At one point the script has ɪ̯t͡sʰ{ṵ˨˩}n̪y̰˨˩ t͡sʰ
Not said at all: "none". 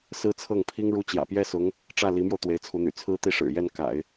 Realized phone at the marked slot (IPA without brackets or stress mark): u˧˥